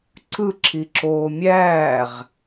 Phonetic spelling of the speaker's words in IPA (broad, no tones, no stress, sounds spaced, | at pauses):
ǀ ɯ ǁʰ i ǁ oː mʲ æː ʁ